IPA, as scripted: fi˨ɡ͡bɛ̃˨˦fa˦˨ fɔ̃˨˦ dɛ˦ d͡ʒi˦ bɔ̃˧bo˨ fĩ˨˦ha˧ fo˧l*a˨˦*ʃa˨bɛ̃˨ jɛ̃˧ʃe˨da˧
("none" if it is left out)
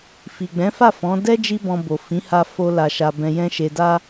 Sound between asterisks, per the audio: a˨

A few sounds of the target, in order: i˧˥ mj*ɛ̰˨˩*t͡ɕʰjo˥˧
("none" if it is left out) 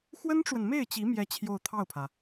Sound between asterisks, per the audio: ɛ˥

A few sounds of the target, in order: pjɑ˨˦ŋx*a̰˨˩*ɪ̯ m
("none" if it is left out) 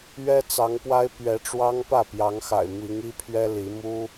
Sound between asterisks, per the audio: a̰˨˩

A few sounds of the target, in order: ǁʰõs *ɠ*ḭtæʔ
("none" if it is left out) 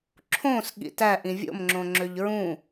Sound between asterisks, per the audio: ɠ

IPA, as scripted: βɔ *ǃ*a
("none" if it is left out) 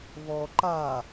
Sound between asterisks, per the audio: ǃ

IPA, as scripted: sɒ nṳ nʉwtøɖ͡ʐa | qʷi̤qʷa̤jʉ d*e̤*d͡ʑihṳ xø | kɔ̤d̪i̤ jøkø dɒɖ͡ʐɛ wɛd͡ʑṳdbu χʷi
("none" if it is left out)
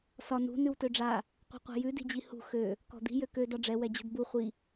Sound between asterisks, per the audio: i̤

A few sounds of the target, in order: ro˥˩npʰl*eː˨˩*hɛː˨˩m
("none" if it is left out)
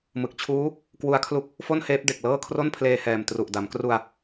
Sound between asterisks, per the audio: eː˧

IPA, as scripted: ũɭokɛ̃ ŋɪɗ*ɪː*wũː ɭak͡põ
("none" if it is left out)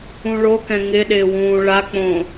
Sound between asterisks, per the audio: ɪː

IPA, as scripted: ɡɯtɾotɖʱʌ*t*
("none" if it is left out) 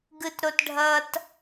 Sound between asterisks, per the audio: t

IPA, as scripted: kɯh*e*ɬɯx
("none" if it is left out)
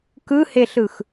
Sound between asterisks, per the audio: e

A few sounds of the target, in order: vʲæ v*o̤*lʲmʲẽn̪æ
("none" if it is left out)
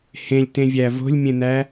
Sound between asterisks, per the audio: o̤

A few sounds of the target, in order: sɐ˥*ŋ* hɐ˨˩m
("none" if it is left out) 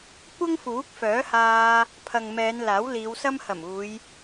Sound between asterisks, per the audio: m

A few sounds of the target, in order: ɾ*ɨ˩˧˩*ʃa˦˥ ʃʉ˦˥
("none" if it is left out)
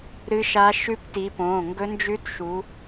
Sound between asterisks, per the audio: ɨ˦˥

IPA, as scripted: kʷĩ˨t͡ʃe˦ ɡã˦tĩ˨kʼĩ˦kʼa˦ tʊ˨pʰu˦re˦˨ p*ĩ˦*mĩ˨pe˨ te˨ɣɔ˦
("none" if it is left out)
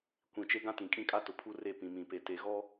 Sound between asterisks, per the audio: ĩ˨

